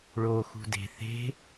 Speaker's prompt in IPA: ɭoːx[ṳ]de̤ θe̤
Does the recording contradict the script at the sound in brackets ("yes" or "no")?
no